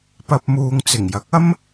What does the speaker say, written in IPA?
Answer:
pɐ˨p̚muː˨ŋ t͡sɪ˨˩ŋjɐ˨˥k̚ ɐ˥m

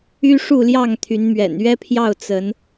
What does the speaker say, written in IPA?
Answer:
y˦ʂu˥˨ljɑ˥˨ŋ t̪ʰy˨˦nmɥɛ̰˨˩n ɥɛ˦pʰjɑ˥˨ʊ̯ t͡sə˨˦n

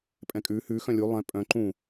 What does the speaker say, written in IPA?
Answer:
pʼɛ̃kʼʉ hʉ xœ̃lʲu lˠɛ̃ pʼœ̃ ǃũ

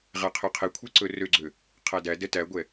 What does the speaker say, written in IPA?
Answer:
ʁæqʰøqʰekʷʰe ǀɵrøɡ͡ǀø | qʰædædɛ tæɡʷɛ

